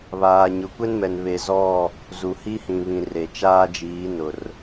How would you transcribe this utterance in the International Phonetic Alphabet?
β aː˨ ɲ ʊ˨ kʷ ɛ˦ n m ɛ˨ n β e˨ z ɔ˦˨ | z u˨ h i˦ h ĩ˨ β ĩ˨ r e˨ t͡ʃ aː˦ d͡ʒ iː˨˦ n ʊ˨ r

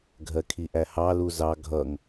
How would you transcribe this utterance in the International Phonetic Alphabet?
ɡʱ ɜ kʰ i ʔ æ h ɑ l u z ɑ ɡʱ ʌ ŋ

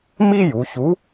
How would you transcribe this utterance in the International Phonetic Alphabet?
m i˥ j u˩˧ ç u˧˥

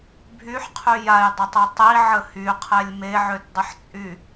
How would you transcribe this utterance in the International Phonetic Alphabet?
bʱ y ħ qʰ y j a j dˤ ə tˤ i tˤ i ʕ ə h y qʰ ɛ lʲ m e ʕ ø t dˤ ə ħ t͡sʼ y

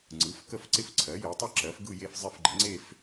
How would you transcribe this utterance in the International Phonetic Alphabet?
ŋ͡ǀ ɯ˩˥ f k ə˥˧ f ǀ ɪ˥˧ f ǀʰ ɜ˩˥ j e˩˥ tˤ ɪ˥˧ ǁ ɜ˩˥ f ɡ ɯ˥˧ j e˥˧ f zˤ ɪ˥˧ f ɡ͡ǃ ə˩˥ ŋ͡ǀ e˥˧ f

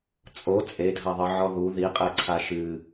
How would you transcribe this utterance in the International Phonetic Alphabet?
t͡sʼ o t͡sʼ e dʱ ɐ ðˤ ɨ ʕ ɔ ð u ð i qʼ ɛ ǀʰ a ʃ ɨ

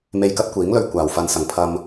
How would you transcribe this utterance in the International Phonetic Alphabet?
m e˧ j k ɐ˥ t̚ kʷ iː˨˥ ŋ l ɵ˧ ɥ kʷ aː˨˩ w f ɐ˨ n s ɐ˨˩ ŋ pʰ ɐ˨ m

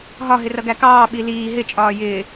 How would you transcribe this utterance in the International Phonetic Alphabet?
ɦ ɒ ɦ ɪ r ʌ ɡ æ k ɑː ɓ i l iː ɦ ɪ t͡ʃʼ ɒː j ɪː

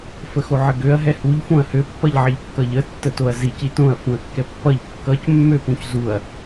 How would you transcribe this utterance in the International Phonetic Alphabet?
f ə x o ʕ ə ɡ ø ɐ̯ ɦ ɛ h u ʎ f õ ɐ̯ h ø pː ʌ ʎ ʕ ɐ ʎ kː ʌ ʎ ə tː ə t o ɐ̯ z i c i t õ ɐ̯ f ũ ɐ̯ kː ɛ pː ʌ ʎ kː ʌ c mː ø p ũ c z u ɐ̯

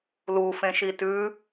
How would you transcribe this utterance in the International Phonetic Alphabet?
l u f ẽ ʃ i t ʉ

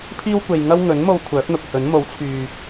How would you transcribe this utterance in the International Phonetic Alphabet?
pʰ iː˥ w kʷ e˨ j ŋ ɐ˥ w ŋ ɵ˨˥ n m o˧ w kʷʰ œː˨˥ k̚ n̪ ʊ˨ k̚ h ɵ˨˥ n m o˨˥ w t͡sʰ yː˨

